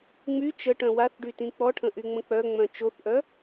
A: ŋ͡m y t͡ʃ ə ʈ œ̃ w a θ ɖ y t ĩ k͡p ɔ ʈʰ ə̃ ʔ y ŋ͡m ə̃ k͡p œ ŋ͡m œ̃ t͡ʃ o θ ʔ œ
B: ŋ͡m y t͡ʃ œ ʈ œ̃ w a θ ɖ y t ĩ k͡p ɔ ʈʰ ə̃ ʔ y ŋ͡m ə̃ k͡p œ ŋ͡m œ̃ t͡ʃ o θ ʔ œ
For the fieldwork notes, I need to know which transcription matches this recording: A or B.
A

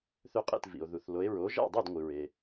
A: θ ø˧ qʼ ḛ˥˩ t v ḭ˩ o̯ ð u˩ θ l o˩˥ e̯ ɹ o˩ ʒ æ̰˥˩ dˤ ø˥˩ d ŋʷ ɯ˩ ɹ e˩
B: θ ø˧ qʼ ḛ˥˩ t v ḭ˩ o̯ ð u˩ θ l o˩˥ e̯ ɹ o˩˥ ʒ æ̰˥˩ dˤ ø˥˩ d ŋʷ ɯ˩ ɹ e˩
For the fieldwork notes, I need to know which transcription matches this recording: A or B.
B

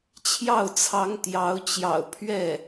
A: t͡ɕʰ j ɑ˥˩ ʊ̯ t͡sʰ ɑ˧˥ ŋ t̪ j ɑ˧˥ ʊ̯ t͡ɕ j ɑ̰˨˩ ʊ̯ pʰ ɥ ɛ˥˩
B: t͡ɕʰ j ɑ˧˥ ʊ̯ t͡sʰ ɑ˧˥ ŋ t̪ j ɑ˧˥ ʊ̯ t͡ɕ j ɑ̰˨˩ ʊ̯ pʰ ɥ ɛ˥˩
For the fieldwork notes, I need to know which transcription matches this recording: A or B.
A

